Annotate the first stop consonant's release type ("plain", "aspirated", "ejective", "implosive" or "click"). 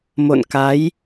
plain